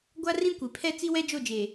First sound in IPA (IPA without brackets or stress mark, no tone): ɡʷ